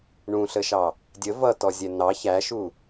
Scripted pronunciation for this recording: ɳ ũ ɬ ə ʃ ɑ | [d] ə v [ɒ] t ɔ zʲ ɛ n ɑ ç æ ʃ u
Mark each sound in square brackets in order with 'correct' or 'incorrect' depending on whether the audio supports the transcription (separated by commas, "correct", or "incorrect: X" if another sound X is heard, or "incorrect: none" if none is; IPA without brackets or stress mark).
incorrect: dʲ, incorrect: ʌ